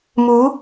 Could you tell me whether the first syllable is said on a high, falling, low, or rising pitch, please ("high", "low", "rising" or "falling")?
rising